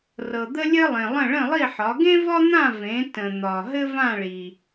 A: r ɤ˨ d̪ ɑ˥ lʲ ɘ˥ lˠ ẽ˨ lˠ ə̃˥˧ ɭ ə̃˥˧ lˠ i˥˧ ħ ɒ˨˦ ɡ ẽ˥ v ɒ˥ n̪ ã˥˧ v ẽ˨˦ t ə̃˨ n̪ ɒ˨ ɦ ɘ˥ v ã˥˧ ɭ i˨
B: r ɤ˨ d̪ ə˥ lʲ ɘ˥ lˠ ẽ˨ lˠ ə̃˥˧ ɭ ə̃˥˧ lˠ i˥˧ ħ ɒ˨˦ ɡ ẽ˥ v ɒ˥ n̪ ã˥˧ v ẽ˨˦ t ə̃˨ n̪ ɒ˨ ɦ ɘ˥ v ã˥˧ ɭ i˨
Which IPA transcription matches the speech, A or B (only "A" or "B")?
B